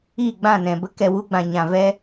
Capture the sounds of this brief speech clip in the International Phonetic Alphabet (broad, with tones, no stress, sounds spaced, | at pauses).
iː˦˨ ɡ͡b ã˦˨ n ɛ̃˨ b ə˦ k ɛ˨ w u˧ ɡ͡b ã˨ ɲ ã˨ v ɛ˦